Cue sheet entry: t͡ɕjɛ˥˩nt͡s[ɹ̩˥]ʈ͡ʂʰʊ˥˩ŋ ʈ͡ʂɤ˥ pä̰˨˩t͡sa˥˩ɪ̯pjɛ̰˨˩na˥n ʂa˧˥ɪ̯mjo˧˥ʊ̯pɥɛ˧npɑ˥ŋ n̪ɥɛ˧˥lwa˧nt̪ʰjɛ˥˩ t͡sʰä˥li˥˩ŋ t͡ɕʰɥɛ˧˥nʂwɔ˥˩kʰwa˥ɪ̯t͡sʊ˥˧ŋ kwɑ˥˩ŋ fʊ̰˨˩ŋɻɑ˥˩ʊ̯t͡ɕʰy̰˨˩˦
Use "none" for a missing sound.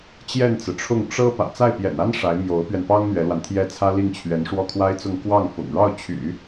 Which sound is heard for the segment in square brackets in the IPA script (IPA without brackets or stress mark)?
ɹ̩˩